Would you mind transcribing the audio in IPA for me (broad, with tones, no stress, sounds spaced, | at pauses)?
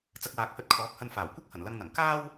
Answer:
t͡s ɐ˧ k̚ w aː˨˥ k̚ h ɵ˧ t̚ kʰ ɔː˨˥ k̚ h ɐ˧ n f aː˨˩ w kʷ ɐ˥ k̚ h ɐ˨˩ n l ɐ˧ ŋ n̪ ɐ˨˩ ŋ k aː˥ w